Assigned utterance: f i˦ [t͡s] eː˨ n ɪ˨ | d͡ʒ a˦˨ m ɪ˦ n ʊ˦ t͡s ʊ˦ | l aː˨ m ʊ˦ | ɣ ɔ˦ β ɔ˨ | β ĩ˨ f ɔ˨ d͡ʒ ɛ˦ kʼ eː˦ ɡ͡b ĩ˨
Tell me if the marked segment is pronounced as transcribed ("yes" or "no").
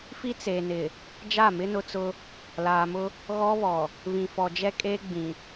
yes